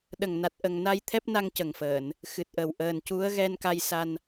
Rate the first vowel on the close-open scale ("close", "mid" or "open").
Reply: mid